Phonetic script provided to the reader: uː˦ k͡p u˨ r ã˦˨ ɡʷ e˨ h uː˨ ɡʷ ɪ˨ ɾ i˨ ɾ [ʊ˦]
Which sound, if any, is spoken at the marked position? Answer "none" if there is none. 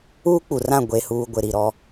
ɔ˦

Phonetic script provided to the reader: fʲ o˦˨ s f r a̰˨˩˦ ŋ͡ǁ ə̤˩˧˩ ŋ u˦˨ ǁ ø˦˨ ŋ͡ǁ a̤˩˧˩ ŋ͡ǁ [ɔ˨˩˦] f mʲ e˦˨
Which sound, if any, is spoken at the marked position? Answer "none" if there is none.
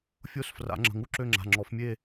ɔ˨˩˦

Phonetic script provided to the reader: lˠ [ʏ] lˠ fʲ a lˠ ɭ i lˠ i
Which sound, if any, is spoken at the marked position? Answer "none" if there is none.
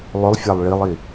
ʏ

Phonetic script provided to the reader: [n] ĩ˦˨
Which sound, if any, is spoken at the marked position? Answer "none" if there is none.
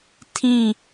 tʰ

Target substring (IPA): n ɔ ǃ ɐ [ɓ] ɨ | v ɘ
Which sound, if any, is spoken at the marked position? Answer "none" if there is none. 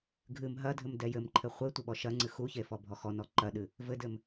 ɗ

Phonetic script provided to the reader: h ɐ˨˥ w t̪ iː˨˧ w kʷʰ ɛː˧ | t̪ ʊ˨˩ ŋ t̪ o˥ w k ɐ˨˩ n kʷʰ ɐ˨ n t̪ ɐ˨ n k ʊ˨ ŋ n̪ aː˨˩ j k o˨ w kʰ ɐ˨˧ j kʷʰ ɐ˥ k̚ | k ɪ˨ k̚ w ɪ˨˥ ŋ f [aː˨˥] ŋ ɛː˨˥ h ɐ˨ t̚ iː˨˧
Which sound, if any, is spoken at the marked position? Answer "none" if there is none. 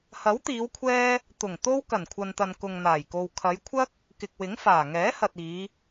aː˨˩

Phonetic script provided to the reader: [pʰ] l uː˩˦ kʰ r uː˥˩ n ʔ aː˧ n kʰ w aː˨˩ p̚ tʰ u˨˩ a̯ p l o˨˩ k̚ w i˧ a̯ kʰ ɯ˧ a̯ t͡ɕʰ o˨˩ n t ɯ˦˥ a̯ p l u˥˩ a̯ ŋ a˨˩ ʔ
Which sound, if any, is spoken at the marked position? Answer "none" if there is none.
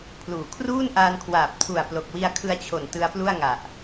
pʰ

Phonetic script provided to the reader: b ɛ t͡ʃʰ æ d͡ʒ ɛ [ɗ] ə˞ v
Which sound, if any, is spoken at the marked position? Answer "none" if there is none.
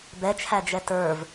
t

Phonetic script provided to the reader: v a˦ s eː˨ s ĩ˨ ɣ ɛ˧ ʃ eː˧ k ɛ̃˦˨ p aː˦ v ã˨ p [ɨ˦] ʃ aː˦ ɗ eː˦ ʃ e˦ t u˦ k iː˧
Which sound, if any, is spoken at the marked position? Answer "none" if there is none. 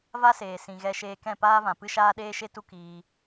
ɨ˦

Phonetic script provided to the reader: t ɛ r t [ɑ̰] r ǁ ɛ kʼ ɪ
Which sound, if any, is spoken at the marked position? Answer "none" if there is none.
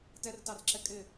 ɑ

